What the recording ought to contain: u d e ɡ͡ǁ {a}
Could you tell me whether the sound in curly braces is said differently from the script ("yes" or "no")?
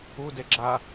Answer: no